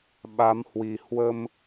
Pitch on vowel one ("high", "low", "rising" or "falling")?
rising